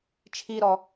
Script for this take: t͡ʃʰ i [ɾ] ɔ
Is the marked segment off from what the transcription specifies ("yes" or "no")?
no